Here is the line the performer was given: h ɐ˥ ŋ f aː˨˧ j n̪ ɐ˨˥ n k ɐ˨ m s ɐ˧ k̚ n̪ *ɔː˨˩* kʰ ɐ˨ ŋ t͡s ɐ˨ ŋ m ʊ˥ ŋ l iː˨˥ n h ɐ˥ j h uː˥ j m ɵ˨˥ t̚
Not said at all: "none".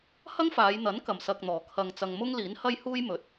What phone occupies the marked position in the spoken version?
ɔː˨˩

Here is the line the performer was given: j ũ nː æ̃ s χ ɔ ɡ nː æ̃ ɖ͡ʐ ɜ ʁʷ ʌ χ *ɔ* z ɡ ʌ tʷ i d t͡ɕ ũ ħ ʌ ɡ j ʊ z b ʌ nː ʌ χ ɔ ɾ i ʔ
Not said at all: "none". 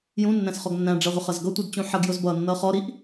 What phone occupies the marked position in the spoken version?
ʌ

